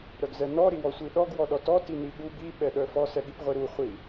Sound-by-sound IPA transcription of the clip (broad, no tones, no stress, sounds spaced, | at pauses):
ɾ œ ɡ z ɛ n ɔ ɾ i w ɔ sʷ i ɗ ɔ ɡ w ɔ ɗ ɔ t ɔ t i n i ɠ u b i ɓ ɛ ɗ œ f ɔ s ɛ ɠ i p ʁʷ i ɾ u χʷ i